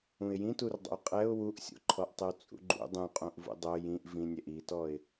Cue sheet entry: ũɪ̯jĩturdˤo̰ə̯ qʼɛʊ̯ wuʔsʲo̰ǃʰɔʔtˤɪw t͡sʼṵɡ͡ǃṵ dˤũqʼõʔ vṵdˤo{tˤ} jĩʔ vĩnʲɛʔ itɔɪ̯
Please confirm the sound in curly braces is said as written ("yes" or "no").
no